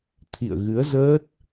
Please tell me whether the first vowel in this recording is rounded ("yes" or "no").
no